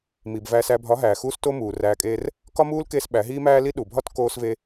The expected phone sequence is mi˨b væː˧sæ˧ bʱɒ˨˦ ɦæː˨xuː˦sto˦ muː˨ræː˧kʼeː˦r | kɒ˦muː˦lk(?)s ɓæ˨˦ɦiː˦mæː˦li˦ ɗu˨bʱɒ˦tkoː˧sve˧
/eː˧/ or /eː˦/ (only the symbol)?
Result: eː˧